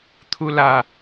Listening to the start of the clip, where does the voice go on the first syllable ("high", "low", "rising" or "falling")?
low